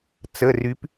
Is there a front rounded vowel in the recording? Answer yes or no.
yes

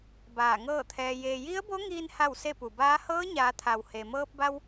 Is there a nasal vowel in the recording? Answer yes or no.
no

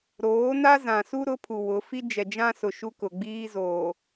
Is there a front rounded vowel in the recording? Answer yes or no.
no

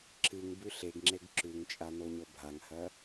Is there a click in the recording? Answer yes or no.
yes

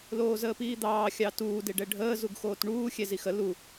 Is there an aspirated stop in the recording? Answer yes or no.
no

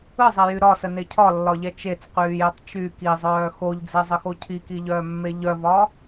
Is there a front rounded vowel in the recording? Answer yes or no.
yes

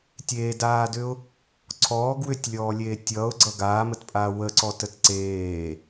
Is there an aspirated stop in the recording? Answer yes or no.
yes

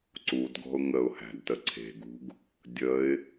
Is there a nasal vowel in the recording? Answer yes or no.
no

